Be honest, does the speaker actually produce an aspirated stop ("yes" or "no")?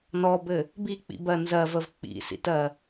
no